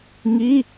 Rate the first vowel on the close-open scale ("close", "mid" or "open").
close